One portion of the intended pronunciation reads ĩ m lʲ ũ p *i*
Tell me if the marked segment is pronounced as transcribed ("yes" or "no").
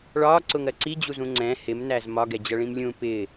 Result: no